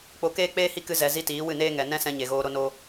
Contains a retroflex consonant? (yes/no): no